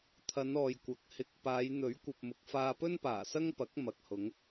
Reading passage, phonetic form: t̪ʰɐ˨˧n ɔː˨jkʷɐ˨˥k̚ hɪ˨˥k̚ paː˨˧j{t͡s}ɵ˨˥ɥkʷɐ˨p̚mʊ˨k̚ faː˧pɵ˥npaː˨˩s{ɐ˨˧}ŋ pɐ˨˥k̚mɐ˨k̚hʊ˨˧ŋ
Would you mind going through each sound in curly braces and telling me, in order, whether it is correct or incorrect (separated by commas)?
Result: incorrect, incorrect